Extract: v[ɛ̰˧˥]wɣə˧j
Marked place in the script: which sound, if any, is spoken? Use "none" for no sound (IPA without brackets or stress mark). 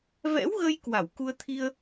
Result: ɛ̰˧˥